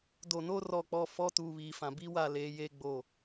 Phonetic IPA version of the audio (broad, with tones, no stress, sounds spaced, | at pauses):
d o˨ n o˦ r ɔ˨ k͡p ɔ˨ f ɔ˦ t uː˨ β iː˨ f ã˨ b i˦ w a˨ l eː˨˦ j eː˦ ɡ͡b o˦˨